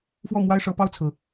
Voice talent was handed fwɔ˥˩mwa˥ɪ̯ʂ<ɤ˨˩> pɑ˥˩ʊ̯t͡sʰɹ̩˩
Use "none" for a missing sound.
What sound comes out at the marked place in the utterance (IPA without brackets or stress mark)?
ɤ˧˥